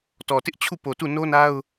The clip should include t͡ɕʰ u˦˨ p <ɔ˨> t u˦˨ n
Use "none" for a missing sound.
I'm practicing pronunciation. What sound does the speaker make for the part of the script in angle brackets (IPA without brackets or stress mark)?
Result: o˨